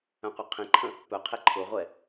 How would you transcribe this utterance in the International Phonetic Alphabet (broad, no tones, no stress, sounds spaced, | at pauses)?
œ̃ qʷ œ qʰ ĩ ǃʰ ə̃ | p œ qʰ e ǃʰ ʊ ʁʷ ɛ